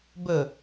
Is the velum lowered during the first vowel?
no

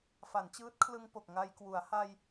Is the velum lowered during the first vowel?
no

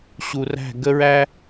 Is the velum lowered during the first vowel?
no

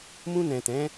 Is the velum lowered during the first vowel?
yes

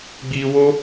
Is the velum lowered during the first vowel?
no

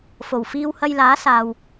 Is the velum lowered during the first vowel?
no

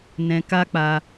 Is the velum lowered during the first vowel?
yes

